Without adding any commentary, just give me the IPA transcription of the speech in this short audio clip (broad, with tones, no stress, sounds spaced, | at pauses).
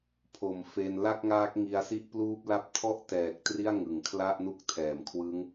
pʰ o˨˩ m f e˧ n l a˥˩ k̚ ŋ aː˦˥ k̚ ŋ i˧ a̯ s i˥˩ ʔ p l uː˦˥ p̚ l a˥˩ p̚ tʰ ɔ˥˩ ʔ t ɛː˨˩ k̚ t r i˥˩ a̯ ŋ ɯ˨˩ ŋ kʰ l a˥˩ ʔ n u˦˥ k̚ tʰ ɛː˨˩ m kʰ w ɯ˦˥ ŋ